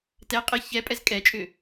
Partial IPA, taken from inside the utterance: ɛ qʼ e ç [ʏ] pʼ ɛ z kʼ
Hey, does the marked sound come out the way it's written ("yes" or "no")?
no